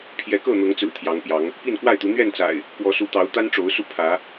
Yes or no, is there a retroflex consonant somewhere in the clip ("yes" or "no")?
yes